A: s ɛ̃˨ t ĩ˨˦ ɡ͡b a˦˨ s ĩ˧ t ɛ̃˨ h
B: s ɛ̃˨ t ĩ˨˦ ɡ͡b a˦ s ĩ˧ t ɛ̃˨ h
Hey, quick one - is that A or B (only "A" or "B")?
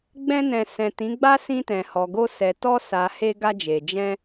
B